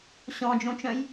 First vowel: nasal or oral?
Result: nasal